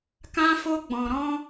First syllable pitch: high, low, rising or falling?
high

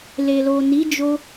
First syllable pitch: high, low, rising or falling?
low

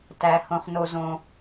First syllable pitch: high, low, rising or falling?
low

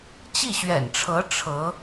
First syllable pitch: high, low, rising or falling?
falling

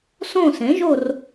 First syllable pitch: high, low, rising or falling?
falling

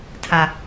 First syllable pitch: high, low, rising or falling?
low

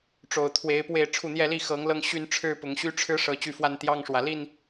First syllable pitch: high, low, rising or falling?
low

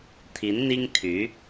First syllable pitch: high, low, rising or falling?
rising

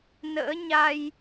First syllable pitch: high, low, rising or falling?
rising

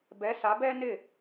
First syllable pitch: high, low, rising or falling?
rising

